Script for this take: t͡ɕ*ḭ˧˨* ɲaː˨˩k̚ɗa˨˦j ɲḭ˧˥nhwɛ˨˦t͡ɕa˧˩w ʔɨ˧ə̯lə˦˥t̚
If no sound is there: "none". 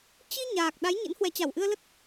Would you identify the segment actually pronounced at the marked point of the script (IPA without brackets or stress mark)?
i˧